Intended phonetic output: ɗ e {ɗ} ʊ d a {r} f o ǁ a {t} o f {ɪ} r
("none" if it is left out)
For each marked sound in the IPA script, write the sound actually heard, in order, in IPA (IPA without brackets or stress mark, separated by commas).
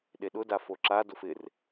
ɗ, none, d, ɪ